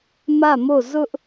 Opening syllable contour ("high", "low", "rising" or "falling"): falling